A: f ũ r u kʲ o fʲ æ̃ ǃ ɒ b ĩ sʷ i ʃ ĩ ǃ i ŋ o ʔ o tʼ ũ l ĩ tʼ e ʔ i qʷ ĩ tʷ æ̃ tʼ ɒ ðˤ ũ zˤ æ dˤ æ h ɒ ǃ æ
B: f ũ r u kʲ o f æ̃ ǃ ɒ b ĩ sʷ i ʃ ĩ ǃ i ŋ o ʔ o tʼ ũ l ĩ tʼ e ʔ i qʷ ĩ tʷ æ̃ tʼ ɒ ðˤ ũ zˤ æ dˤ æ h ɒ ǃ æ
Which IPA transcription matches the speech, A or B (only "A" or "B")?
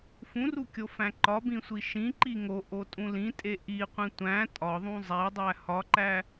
B